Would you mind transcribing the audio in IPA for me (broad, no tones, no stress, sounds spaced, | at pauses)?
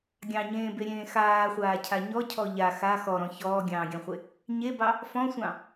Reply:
ɡʲ ɑ̃ ɲ ẽː b e ɾʲ ẽː x aː χʷ aː cʰ a ɲ ɔ cʰ ɔ ʎ a x a x ɔ ɾ ɔ̃ ç ɔː ɡʲ ɑ̃ː ɡʲ ɑ̃ χʷ e | ɲ e b ɑ | f ɔ̃ sʷ ɑ̃